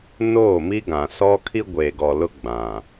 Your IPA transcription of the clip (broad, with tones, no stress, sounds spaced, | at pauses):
n oː˦˨ m i˦ ɡ ã˨ s ɔ˦ kʰ i˦ ɡʷ eː˨ ɡ ɔ˨ l ʊ˦ ɡ͡b ã˨